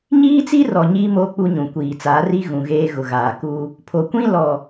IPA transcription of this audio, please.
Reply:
ɲ iː˦ t͡s i˦ r ɔ˨ ɲ iː˦ m oː˦ k͡p u˦ ɲ ũ˨ kʷ iː˨ t͡s aː˨˦ r i˦ ɣ ũ˨ ɣ eː˦ ɣ ʊ˨ ɣ aː˨ k uː˦ | pʰ o˨ kʷ ĩ˦ l ɔ˨

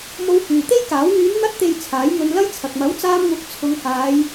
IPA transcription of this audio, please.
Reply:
m o˧ w h yː˨ t̪ e˥ j k aː˨˥ w ŋ yː˨˧ n n̪ ɐ˧ t̚ t̪ e˨ j t͡sʰ aː˨˥ j ŋ ɵ˧ n l ɐ˥ j t͡sʰ ɐ˨ k̚ m ɐ˨˥ w t͡s aː˧ m ŋ ʊ˨˥ k̚ t͡sʰ ʊ˨˧ ŋ h aː˨˧ j

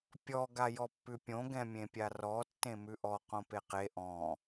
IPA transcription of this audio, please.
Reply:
pʲ ɔ ɡ a j ɔ pː ʉ pʲ õ ɡ ɛ̃ mʲ ẽ pʲ a r ɔ tː ẽ m ʉ ʔ ɔ q õ p e q e ʔ ɔ̃

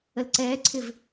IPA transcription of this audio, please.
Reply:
ə l ǀ ɛː ǀʰ ɪ v

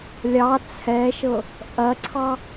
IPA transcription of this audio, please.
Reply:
lʲ ɑ t͡sʰ ɛ ʃ ɤ | ʔ ɐ ǀʰ ɑ

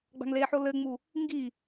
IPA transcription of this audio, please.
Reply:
ɡ͡b a̤ ŋ l e ħ o l ɘ ŋ͡m u | ŋ ɡ i

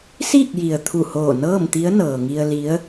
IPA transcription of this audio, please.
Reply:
s iː˥˨ k̚ j i˩ ə̯ t̪ʰ u˧˩ h oː˧˩ n ɤː˥˨ m t̪ i˧˥ ə̯ n ɤː˩ ŋ i˧ ə̯ l i˧˥ ə̯

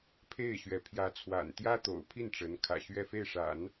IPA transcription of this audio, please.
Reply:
pʰ e˥˩ ɪ̯ ɕ ɥ ɛ˧˥ pʰ j ä˧˥ t͡sʰ w a̰˨˩ n t̪ j ä˥ t̪ o̰˨˩ ʊ̯ pʰ i˥˩ n ʈ͡ʂ ə˧˥ n kʰ ä̰˨˩ ɕ ɥ ɛ˥˧ f e˥˩ ɪ̯ ʂ a̰˨˩˦ n

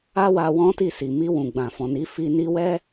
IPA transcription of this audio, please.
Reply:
a˦ w a˧ w ɔ̃˦ t i˦˨ s i˨ m i˧ w ũ˨ ɡ͡b ã˨ f ɔ̃˨ n i˨˦ f i˧ n i˧ w ɛ˦

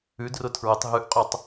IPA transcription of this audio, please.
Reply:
ʉ d r ʊ tʰ ɹ ɘ tˤ ɦ ʉ ʔ qʼ ø tˤ

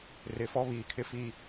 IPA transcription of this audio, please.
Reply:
r ɪ˨ f ɔ˦ β iː˨ kʰ ɪ˦ f i˦

